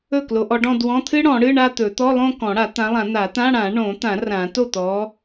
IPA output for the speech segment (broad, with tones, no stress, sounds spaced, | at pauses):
ɵ˥˩ k l o˨˦ ʔ ɔ˨˦ ɖ ɔ̃˥˧ d w ɔ̃˧˥˧ t̪ʰ ɨ˥ ɽ ɔ̃˨˩˦ ɽ ɨ˧˥˧ ɳ a˥˧ t̪ ɵ˨˩˦ t̪ ɔ˧˥˧ lˠ õ˥˧ k ɔ̃˨˩˦ ɽ a˨˩˦ t̪ ã˨˦ lˠ ã˨˩˦ n̪ a˨˩˦ t̪ ã˧˥˧ ɽ ã˨˩˦ ɳ õ˨˩˦ t̪ ã˨˩˦ r ã˨˩˦ t o˥˩ t̪ ɔ˨˦